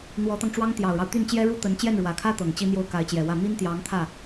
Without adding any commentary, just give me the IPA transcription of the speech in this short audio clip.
n̪ w ɔ˧˥ t̪ ɑ˧ ŋ ʈ͡ʂ w ɑ˥ ŋ t̪ j ɑ˨˩ ʊ̯ ɻ ɑ˦ ʊ̯ t̪ y˥˩ n t͡ɕ j ɛ˥ ɻ u˥ t̪ ə˧˥ n t͡ɕ j ɛ˥˩ n ɻ w ä˨˩ kʰ ä˥ t̪ ɤ˨˩ ŋ t͡ɕ i˥ n̪ j o˥˩ ʊ̯ k a˧˥ ɪ̯ t͡ɕ j ɛ˨˩ w ä˥˩ m i˥ n t̪ j ɑ˧˥ ŋ t̪ʰ ä˥˩

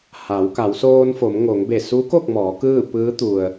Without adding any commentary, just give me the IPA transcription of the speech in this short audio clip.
h a˩˧ w k a˩˧ w s oː˧ n f o˩˧ m ŋ o˩˧ ŋ b e˧˩ s u˧˥ k o˥˨ k̚ m ɔː˩˧ k ɯː˥˨ p ɯː˧˥ t̪ u˩ ə̯

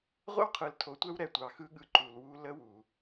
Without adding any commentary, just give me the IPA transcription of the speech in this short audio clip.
ʁʷ ə̰˦ w qʰ ɯ˨ l tʰ o˨ tʷ ɛ˦ w ɾ ɛ˨ tʷ ɑ˨ x ɯ˦ ɠ ɯ˨ ǃ u˨ l w u˦ l ə˦ w u˨

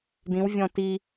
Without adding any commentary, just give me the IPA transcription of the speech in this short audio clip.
d ĩ w vʲ ɔ̃ t i

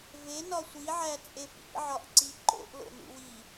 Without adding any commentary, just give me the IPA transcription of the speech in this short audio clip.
v e n ɒ sʷ i ʕ æ t͡sʼ e p ḭ ʕ ɒ ʔ ǀ i ǃ o̰ ʔ l o̰ n ṵ w i

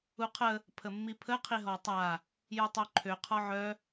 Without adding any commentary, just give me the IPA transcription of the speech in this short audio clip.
u qʰ ə | pʰ ə mː i pʰ ə qʰ i ɦ ɔ tˤ a | j u tˤ œ ǃʰ ø qʰ ɔ ʕ œ

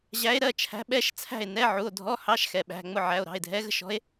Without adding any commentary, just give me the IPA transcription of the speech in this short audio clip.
ʑ æ˧˥ e̯ ɾ ɜ˩˧˩ t͡ʃʰ æ̤˧˥ ɓ ɛ˧˥˧ ʃ t͡sʰ æ̤˥˨ e̯ n ɛ˧˥˧ ʕ u˩˧˩ o̯ dʱ ɔ˧˥˧ h ɑ˧˥˧ ʃ x ɛ˩ ɓ æ̤˩˧˩ ŋ͡m ʊ˥˨ ʕ æ˩˧˩ o̯ ɾ ɑ̤˩˧˩ e̯ dʱ ɛ˧˥ ɣ ə̤˧˥˧ ʃ ɔ̤˧˥ e̯

